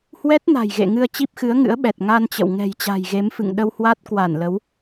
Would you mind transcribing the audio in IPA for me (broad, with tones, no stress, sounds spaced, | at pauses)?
h w ɛ˦˥ t̚ n a̤˨˩ j ɣ ḛ˧˨ ŋ ɨ˧ ə̯ t͡ɕ i˦˥ p̚ x ɨ˨˦ ə̯ ŋ ɨ̰˧˥ ə̯ ɓ ɛ˨˩ t̚ ŋ a˧ n t͡ɕ ə̰˧˨ w ŋ ɛ̤˨˩ j t͡ɕ a̤˨˩ j ɣ e˨˦ m f ɨ̰˧˨ ŋ ɗ ə˧ w h w a˦˥ t̚ k w a˧˩ n l ə˨˦ w